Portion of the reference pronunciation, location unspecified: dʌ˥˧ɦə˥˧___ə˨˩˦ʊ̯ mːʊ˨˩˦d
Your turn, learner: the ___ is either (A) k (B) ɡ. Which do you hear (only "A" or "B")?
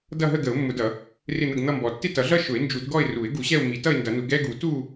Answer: B